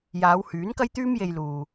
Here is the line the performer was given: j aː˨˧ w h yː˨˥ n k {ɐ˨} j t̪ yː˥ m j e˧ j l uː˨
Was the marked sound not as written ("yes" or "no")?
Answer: yes